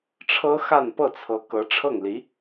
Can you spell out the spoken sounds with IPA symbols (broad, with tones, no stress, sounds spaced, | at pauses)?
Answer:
ʈ͡ʂʰ ɤ˥ x a˥˧ n p ɤ˥˩ t͡sʰ ɤ˧˥ k ɤ˧˥ ʈ͡ʂʰ ɤ˥˩ ŋ l i˧˥